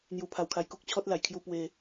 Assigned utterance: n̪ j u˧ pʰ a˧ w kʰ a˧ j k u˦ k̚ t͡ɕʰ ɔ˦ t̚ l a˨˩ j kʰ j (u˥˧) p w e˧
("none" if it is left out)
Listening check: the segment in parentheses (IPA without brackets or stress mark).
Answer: u˧